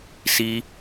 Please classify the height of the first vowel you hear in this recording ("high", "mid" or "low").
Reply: high